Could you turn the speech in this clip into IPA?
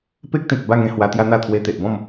p e˦ k̚ t̪ ĩ˨ k̚ b a˥˧ ŋ ẽ˧ h w a˧ t̪ j a˦ n̪ a˥˧ t̪ʰ w e˧ t̪ e˨ ʔ b ɔ̃˥˧ m

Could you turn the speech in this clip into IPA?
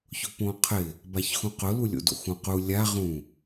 ç ʊ p õ qʰ ɪ | b a ç x ũ q ʊ l u lʲ o̰ d o̰ x ũ q u lʲ a ʁ ũ

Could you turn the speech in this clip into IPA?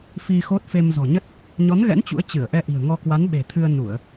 f i˧ x o˦˥ t̚ f e˧ m z ɔ̤˨˩ ɲ ə˦˥ t̚ | ɲ ɔ˨˦ n ɣ ɛ̰˧˥ n t͡ɕ ṵ˧˥ ə̯ t͡ɕ ɨ˧˩ ə̯ ʔ ɛ˧ ʔ i̤˨˩ ə̯ ŋ ɔ˧ k w a˨˦ n ɓ e̤˨˩ t̪ʰ ɨ˧ ə̯ n u˧˩˨ ə̯

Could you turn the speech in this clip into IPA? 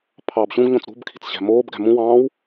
pʰ ɑː b ɕ ũ ɡ ɲ õ t͡s ɾ ṳ b kʰ i̤ t͡s ɕ æ̤ m oː b ɡ æ̤ m ũ w ɑ̃ː w

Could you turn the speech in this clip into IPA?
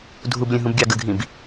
dʱ u b lʲ ə̃ ɦ ũ b ɡʲ ɑ ɡ ə ɡʱ ĩ b

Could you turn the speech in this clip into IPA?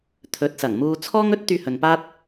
t̪ʰ ɵ˨˥ t̚ s ɐ˨˩ ŋ m uː˧ t͡sʰ ɔː˥ ŋ ɵ˥ t̚ t̪ yː˧ h ɵ˨ n p aː˥ t̚

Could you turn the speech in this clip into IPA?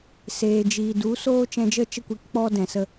s eː˨ d͡ʒ iː˨ d u˨˦ s oː˦ t͡ʃ ɛ̃˧ d͡ʒ ə˦ t͡ʃ ə˦˨ kʷ i˧ k k͡p ɔ˦ d ɛ̃˨ s ə˧

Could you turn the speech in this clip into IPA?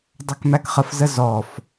dˤ ɐ k m æ k χ ə f z ə z ɔ f

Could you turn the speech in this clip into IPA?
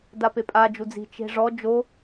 d a p e pʼ a d͡ʒ u d͡z i̤ t͡ʃ e̤ ʐ ɔ d͡ʒ o

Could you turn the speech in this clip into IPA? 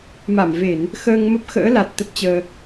m a˧˩ m v e˧˩˨ n | x əː˧ ŋ m ə˦˥ p̚ x ə̰ː˧˥ l a˨˩ t̚ t̪ ə˦˥ p̚ t͡ɕ əː˧

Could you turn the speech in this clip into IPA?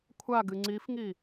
kʷʰ a ɡ ɨ ŋ͡ǀ i f ŋ i

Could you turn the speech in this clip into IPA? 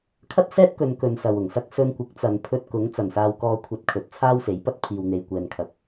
kʰ ɐ˥ t̚ s ɛː˥ t̚ k ɵ˨˧ n k ɵ˨˧ n s ɐ˨ w ʊ˨˩ ŋ s ɐ˥ k̚ s ɵ˧ n kʷ ɪ˨˥ k̚ t͡s ɐ˨˧ n pʰ ɵ˧ t̚ k ʊ˨˥ ŋ t͡s ɐ˨˩ n s aː˨ w k ɔː˨˧ kʷʰ ɐ˨ t̚ kʰ ɵ˨˥ t̚ t͡sʰ aː˥ w s e˨˥ j p ɐ˥ t̚ pʰ iː˨ w n̪ e˨ j kʷ ɛː˨ n kʰ ɐ˨˥ k̚

